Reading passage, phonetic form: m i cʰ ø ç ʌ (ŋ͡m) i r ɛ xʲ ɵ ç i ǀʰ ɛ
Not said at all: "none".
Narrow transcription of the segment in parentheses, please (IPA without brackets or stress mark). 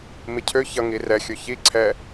ŋ